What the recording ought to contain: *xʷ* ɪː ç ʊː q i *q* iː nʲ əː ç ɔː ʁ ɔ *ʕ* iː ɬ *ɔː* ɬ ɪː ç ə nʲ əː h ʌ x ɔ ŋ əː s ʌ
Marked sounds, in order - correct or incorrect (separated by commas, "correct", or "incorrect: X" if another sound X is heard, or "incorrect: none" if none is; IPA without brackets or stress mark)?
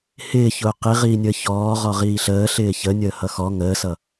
incorrect: h, incorrect: ʁ, incorrect: ʁ, incorrect: əː